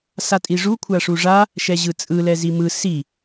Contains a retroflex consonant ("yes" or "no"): yes